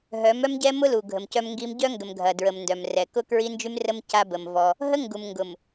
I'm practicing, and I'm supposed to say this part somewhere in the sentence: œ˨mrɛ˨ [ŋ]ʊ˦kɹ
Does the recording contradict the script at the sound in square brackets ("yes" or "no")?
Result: yes